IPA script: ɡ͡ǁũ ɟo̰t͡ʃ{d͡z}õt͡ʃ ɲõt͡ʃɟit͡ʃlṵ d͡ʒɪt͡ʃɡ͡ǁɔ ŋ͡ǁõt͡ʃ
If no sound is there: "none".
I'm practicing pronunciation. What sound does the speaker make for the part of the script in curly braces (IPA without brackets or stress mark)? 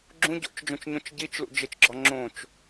d͡ʒ